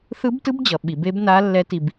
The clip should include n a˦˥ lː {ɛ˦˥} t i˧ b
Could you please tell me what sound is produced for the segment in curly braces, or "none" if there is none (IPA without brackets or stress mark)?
ɛ˦˥